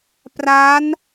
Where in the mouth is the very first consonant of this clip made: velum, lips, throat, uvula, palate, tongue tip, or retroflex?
lips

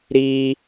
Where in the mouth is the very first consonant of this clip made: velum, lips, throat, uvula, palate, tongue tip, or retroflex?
tongue tip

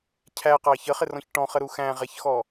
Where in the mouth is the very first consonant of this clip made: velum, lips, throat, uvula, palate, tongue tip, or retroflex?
palate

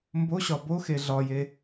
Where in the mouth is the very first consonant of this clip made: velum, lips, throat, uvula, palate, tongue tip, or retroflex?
lips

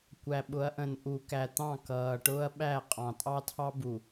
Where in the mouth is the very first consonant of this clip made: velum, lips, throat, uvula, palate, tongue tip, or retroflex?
velum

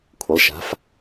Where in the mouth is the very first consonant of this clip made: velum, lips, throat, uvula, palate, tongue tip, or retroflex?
velum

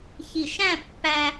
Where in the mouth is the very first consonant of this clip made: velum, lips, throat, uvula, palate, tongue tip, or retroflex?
palate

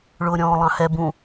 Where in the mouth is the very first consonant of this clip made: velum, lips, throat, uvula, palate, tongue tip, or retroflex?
retroflex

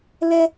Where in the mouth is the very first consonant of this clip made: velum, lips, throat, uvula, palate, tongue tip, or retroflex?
tongue tip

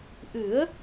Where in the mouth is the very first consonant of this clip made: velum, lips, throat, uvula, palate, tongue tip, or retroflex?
throat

